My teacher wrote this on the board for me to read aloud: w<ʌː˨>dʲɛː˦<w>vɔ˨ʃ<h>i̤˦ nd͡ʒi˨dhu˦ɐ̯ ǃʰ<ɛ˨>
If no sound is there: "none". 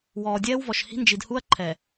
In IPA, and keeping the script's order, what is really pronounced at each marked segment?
ɔː˨, w, h, ɛ˨

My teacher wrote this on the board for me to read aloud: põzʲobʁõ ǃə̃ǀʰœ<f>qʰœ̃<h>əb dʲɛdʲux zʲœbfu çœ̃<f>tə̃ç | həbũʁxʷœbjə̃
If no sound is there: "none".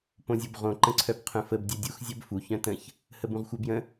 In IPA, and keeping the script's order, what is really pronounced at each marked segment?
b, f, none

